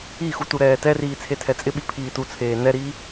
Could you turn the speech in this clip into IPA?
i x u t u ɾ ɛː t ɛ r iː t͡sʰ e tʰ ɛ t͡sʼ ɪ ɓ i pʰ iː t u t͡sʰ eː n ɛ ɾ iː

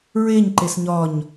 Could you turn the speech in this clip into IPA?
ɹ e ɲ ǃ e s ɲ ɒ ɲ

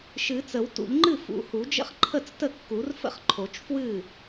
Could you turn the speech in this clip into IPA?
ʃ ɨ˨˩˦ t͡s ə˨˩˦ w t ṵ˨˩˦ ʎ ŋ͡ǃ ɨ˥˩ f ṵ˨˩˦ h u˨˩˦ d͡ʒ ə̰˥˩ χ ǃʰ ə˥˩ t͡s t ə˥˩ kː u˨˩˦ r f ə̰˥˩ χ ǃʰ o˨˩˦ t͡ʃ f w ɨ˥˩

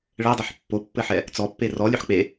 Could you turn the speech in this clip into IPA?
ɭ ɛ dˤ ɘ ħ pː o pː ɘ ħ ɛ | t͡s ɔ pː e r ɔ lʲ ø ħ k͡p e

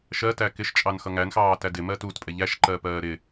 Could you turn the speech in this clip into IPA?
ʃ ɜ t æ k ɪ ʃ t͡ʃʼ ɑ n x ʌ ŋ æ n x ɑː t æ d ɪ m ɜ t u t pʼ ɛ ʎ æ ʃ ǃ ɜ p ɜː ɾ ɪ

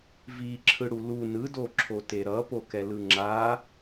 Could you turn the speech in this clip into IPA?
v i ǁʰ ɯ ɽ u l u n ɯ d o ǁʰ o t e ɾ ʌ p o k ɛ l ɯ ŋ͡ǁ a

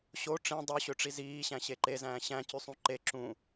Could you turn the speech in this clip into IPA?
ɕ o ʈ͡ʂ ĩ dˤ u ɕ ø ʈ͡ʂ i z iː ɕ æ̃ ɕ e ǃ e z æ̃ː ɕ æ̃ c y sˤ ũ ǃ e ǁ ũ

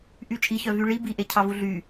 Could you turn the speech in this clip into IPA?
ʔ y t͡ʃʼ i ç œ v y ɭ i b i ʔ e cʰ ɑ v u ɮ y

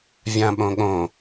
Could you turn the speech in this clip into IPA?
vʲ ã ɓ õ ɠ õ

